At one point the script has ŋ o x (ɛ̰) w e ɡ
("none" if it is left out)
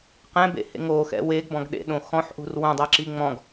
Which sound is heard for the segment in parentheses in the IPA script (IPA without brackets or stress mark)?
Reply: ɛ̰